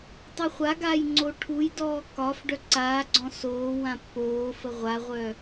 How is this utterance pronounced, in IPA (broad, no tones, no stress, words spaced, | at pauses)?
tˤɨχʷaɡaːj ŋ͡ǀoʈʰujdɔː kɒf ɖœǀaːɡ͡ǀɔ̃ soː wãpːoːfə ʁʷaʁʷœ